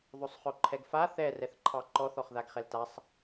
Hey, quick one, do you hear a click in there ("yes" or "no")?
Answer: yes